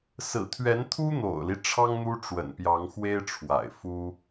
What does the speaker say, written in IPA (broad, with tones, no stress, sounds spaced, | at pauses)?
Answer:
s ɹ̩˨˩ t̪ʰ ɥ ɛ˧˥ n t̪ʰ u˥ n̪ o̰˨˩ ʊ̯ l i˦ ʈ͡ʂʰ ɑ˥ ŋ n̪ u˥ ʈ͡ʂ w ə̰˨˩ n p j ɑ˧˥ ŋ x w e˥ ɪ̯ ʈ͡ʂʰ w a̰˨˩ ɪ̯ f u˥